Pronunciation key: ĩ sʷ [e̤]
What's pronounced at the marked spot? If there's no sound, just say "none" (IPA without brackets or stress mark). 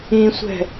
ɛ̤